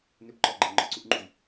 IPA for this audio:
nʏpǃɔʔɡ͡ǃɤ ŋ͡ǃɔǀuʔŋ͡ǃuj

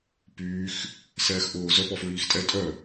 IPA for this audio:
pyːx | sɛːxʔʊː zœ pɔfɹiːxtʼɛ tʼœ

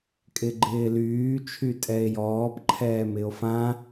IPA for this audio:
kʼɪɡ͡ǃɪːlyː t͡ʃʰytʼɛe̯jɔːp ǃʰɛːmɪo̯fã

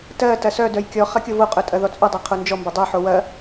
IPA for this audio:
tɜtɐ sœdœj kʲɔχɐ kʲovoqʼœ tʼɐðɔt͡sʼœdˤɜ qʰond͡ʒɔmbɐ dˤœħo wɐ

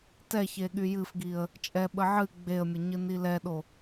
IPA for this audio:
tɛçe ɠyjɨfɡiə̯ | t͡ʃʼɛ ɓəʕɨ ɡ͡beə̯mʲəɲɨni lɛɗo

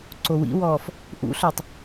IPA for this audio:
ǀowḭwɔːf | ʔṵɬœtˤ

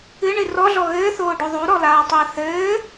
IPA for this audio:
ɨɳɨ rɔɮɔ ɣɘːθoːɖo ðˤuɾɔlaːtˤɘː θɘː

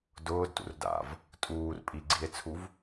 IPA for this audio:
dʊːd tṵrda̰v | tʼuːr pʼiɡ͡ǀie̯t͡sʰuv

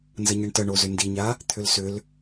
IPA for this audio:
nzəɲəɳtə ɳozʏndiɲa | t̪ʰʏlsʏl

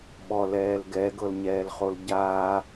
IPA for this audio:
ɓɔlɛːl ɡɛɡɤlɲɛːlχol ɟaː

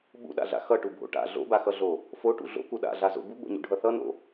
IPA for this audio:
ɓṵɗa̰ɮa̰ xʌʈubʱo̰ ʈa̰ ɮo̰baxʌɮo | foʈṵ ɮo̰ku ɗa̰ɮazo̰ buɡ͡bo̰ɲṵɖʱʌ θʌno̰

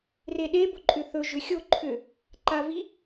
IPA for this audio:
reɗe boǃʼʏθɵ ʒʏxʲo ǃʰʏ | ǃavi

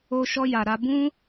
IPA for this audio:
o˧ʃɔ˧ ja˨ɾa˧ bũ˦

